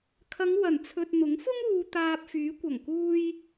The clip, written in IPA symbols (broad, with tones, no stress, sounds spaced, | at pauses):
kʰ ɐ˨˧ ŋ w ɐ˨˩ n t͡sʰ ɵ˨ t̚ n̪ ʊ˨˥ ŋ f ʊ˥ ŋ uː˨ t̪ aː˧ p̚ f yː˨˥ kʷ ɐ˨˩ ŋ k uː˧ j